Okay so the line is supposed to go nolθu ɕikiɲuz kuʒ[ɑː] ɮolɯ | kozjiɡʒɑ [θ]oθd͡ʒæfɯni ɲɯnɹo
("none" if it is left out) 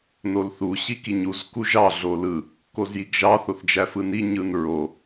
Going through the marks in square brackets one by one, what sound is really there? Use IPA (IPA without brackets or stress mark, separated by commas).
ɑ, θ